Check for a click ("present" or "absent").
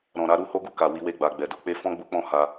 absent